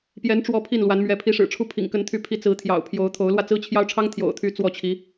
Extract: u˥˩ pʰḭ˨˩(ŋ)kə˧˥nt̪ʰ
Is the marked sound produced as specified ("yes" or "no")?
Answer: yes